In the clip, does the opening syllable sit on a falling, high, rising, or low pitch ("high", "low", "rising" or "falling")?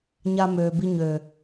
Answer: high